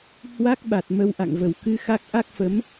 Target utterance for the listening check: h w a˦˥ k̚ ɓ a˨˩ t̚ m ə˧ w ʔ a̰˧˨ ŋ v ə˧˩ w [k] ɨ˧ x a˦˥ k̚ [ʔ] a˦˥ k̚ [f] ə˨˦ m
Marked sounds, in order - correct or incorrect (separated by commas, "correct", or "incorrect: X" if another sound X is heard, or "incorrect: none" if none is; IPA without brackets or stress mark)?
correct, correct, correct